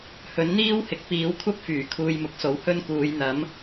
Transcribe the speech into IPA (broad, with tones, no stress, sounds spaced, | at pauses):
h ɵ˨˥ n n̪ iː˥ w h ɪ˨ k̚ p iː˨˥ w kʷʰ ɐ˥ p̚ f yː˨˩ kʰ uː˧ j m ʊ˨˥ k̚ s o˨˥ w h ɵ˥ n k uː˨˧ j n̪ ɐ˨˥ m